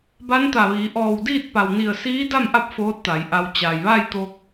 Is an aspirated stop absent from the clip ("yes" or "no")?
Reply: yes